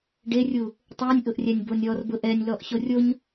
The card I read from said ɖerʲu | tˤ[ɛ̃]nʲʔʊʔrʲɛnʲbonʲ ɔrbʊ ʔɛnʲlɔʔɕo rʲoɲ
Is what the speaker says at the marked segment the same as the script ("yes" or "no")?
no